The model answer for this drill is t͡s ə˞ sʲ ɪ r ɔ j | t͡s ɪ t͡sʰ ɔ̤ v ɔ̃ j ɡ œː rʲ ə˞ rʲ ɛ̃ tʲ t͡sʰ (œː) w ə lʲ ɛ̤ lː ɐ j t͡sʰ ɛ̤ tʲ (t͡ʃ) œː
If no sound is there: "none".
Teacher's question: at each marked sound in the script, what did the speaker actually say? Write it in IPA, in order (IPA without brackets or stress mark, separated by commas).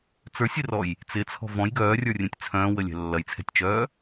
œ̃ː, t͡ʃ